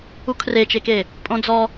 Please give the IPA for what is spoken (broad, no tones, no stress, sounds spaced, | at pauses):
u kʰ r e t͡ʃ e k e | pʼ õ d͡z ɔ